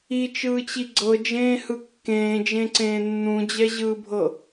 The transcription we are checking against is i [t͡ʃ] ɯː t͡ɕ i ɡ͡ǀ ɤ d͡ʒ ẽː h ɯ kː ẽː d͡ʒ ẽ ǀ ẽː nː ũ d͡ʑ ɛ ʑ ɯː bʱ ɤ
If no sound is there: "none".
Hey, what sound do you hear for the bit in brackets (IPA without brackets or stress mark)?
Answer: t͡ʃ